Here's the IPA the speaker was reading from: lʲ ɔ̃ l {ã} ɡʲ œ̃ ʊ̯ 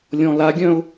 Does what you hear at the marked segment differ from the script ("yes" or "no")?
yes